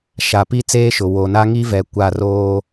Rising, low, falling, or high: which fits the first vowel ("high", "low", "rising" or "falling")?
low